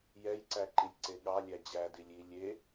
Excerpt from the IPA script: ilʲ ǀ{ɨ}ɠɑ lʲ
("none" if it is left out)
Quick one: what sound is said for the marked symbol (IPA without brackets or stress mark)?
e